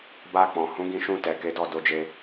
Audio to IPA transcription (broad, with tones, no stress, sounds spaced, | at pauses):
b a˧ k͡p ɔ̃˨ h ũ˨˦ ɡ ĩ˧ ʃ ũ˧ t ɛ˨ k e˨˦ d ɔ˦˨ d o˧ d͡ʒ e˧